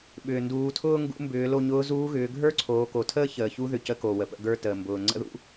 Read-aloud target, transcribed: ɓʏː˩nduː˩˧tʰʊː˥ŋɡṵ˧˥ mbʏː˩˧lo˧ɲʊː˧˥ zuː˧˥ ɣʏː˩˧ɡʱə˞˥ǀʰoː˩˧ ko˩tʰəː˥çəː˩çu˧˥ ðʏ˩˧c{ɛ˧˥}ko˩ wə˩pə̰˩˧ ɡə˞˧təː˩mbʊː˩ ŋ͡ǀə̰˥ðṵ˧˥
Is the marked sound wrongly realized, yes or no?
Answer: yes